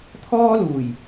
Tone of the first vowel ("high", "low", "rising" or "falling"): high